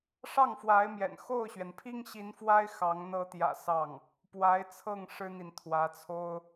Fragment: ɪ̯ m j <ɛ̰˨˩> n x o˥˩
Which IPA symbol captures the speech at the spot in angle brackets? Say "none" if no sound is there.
ɛ̰˨˩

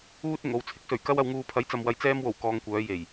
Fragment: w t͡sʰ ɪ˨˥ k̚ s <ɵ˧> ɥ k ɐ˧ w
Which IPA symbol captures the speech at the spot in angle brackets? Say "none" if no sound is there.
ɵ˨˩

